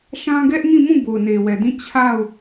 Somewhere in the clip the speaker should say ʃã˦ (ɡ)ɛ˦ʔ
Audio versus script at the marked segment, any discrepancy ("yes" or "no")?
no